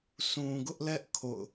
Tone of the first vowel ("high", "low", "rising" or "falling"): low